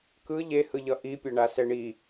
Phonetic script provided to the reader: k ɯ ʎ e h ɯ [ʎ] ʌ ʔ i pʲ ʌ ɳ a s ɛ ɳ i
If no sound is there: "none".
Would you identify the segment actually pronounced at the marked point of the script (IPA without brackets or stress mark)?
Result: ʎ